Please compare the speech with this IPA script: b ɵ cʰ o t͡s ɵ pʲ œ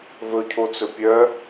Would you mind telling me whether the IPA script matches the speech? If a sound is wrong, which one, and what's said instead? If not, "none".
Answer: b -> v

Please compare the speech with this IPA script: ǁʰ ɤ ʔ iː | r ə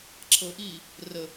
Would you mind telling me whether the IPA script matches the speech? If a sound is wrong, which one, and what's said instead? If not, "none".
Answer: none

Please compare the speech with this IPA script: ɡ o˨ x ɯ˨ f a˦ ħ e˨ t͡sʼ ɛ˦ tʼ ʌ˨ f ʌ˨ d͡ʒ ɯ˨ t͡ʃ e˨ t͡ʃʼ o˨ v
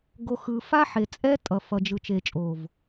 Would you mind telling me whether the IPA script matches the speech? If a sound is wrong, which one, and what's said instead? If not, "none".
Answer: none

